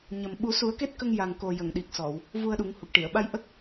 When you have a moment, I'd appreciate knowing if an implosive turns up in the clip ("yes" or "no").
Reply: yes